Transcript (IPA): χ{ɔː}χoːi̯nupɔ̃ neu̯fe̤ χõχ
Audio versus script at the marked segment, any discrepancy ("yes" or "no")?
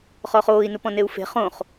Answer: no